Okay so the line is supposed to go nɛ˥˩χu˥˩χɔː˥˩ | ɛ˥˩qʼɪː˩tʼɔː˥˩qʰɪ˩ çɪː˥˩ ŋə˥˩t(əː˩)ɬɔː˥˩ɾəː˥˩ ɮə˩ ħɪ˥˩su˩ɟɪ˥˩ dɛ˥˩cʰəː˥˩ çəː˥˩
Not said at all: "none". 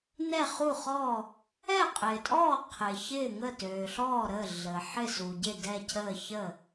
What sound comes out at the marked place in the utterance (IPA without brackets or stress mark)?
øː˩